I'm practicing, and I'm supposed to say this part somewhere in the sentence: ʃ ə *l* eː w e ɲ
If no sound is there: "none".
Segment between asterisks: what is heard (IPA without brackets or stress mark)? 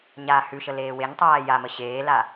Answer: l